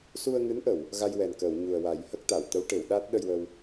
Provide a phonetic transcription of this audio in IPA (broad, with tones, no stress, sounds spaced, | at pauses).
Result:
s u˧ ə̯ ŋ ɨ˧˥ n ʔ ə˨˩˨ w | ɣ a˧ j w ɛ˨˩ n k əː˨˩˨ w ɲ u˨˩ ə̯ w a˨˩˦ j h ə˦˥ k̚ t̪ a˨˩˨ w t̪ ə˧˥ w ʈ e˨˩˨ w ɗ a˦˥ t̚ ɗ ə˧ j w ə˧ w